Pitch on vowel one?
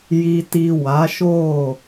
low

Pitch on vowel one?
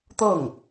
falling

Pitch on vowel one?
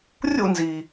falling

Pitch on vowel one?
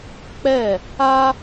falling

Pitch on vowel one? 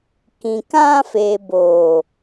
low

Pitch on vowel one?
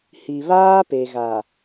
low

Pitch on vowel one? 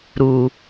low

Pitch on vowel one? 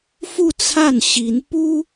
falling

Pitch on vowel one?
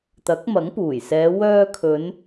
rising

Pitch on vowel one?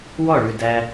falling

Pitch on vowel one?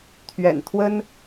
low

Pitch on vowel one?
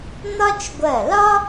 high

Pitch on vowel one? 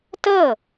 falling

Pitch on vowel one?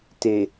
low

